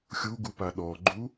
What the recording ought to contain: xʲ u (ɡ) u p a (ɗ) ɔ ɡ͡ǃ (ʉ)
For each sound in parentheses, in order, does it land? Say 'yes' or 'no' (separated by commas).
yes, yes, no